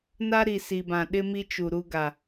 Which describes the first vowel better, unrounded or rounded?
unrounded